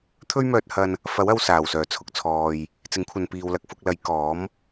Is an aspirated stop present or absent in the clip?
present